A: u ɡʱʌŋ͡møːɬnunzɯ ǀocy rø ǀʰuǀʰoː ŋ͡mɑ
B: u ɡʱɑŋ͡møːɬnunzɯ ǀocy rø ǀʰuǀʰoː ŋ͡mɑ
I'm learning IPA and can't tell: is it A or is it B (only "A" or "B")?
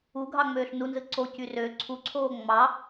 B